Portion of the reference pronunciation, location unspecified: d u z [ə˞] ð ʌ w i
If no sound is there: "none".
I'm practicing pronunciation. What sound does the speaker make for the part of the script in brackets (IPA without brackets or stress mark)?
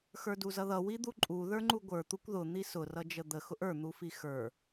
ʌ